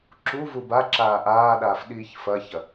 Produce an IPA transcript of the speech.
ǁ u v u b a ǁ aː ʔ aː ɗ aː f ɗ iː ç f ɐ ç ɐ

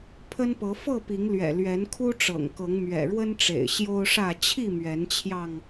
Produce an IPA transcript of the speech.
pʰ ə˦ n p ɤ˨˦ f ɤ˥˨ p i˨˦ ŋ l ɥ ɛ̰˨˩ l ɥ ɛ˨˦ n kʰ u˦ ʈ͡ʂ ɤ̰˨˩ ŋ k ɤ˨˦ ŋ m ɥ ɛ̰˨˩ ɻ w ə˦ n ʈ͡ʂ ḛ˨˩ ɪ̯ ɕ j o˦ ʊ̯ ʂ ä˥˨ t͡ɕʰ i˥˨ m ɥ ɛ˨˦ n t͡ɕʰ j ɑ˧ ŋ

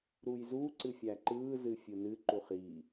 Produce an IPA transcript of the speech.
ɾ u j z u ǀ ɨ fʲ æ ǃ ɯː z ɨ fʲ ɯ n ɨ ǃ u χ i

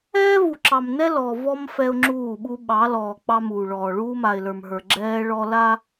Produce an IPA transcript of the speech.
ɛː˦ v u˨ ǁ ɑ˨ m n ɛ˦ l ɔ˨ v ɔ˦ m f ɛ˦ ʊ̯ ŋ͡ǁ uː˦˨ ɓ u˦ ɓ ɑ˨˦ l ɔː˨ k͡p ɑ˦ m uː˨ ɭ ɔː˨ ɭ uː˦ m a˨ ɪ̯ l ə˞˨ m ɦ ə˞˨ ɡ͡ǁ ɛː˦ ɭ ɔ˦ l a˦

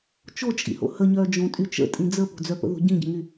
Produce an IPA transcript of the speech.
t͡ʃ o t͡ʃʼ ḭ h o̰ h ə ɲ œː d͡ʒ õ tʼ y t͡ʃ ə̰ tʼ ĩ d͡z ə p o̤ d͡z œ p ə̰ ð o̤ ɟ ĩ ɟ ə̤ ŋ y

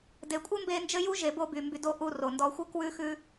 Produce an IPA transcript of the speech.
d e˨ kʷʼ ɘ˦ m b e˧ n d͡ʒ ɘ˦ j u˦ ʒ e˨ b o˧ b y˨ m b y˧ d o˦ ʔ u˧ r o˨ n d ɔ˧ xʷ ɘ˦ k w ʉ˦ x ʉ˦

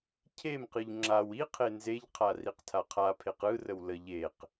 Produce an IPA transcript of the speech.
cʰ e m q ɯ ʎ ŋ͡ǁ a w i qʰ e n z e ʎ qʰ a r i q tʰ a qʰ a pʰ e q ɯ r ə w l ə ʎ e q

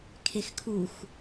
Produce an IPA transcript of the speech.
kʰ e x kʰ u x

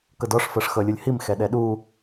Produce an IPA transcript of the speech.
k ɤ d ɔ ʂ f ɤ ʂ x ɤ lʲ u lʲ h i m x ɛ ɗ ɛ ɗ u

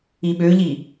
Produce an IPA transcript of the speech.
i ɓ ø ʎ i

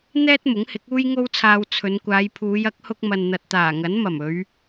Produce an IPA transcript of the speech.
n̪ ɛː˥ t̚ m ʊ˨˥ ŋ h ɪ˨˥ k̚ uː˥ j ŋ o˥ w t͡sʰ aː˧ w t͡sʰ ɵ˨˧ n kʷ aː˨˧ j pʰ uː˨˧ j ɐ˨˥ k̚ h ʊ˧ k̚ m ɐ˨ n n̪ ɐ˨ t̚ t̪ aː˨˩ ŋ ɐ˨˥ n m ɐ˨˩ m ɵ˨˧ ɥ

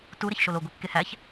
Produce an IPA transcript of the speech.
t u ɾ e ç ʃ o l o ɡʷ i kː e h æ ç

